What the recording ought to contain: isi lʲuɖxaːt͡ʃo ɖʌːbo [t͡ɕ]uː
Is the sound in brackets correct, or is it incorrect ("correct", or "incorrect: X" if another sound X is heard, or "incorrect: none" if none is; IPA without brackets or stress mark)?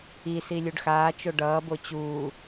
correct